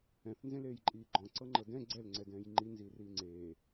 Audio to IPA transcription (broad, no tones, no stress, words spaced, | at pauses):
ɛ̃θnzẽleːjǃʼiː ɡ͡ǃɔ̃ǀɤŋ͡ǃɤ dɛ̃ ɡ͡ǀɛlŋ͡ǀɛdɛ̃ːj ŋ͡ǃinziːriː ŋ͡ǀeː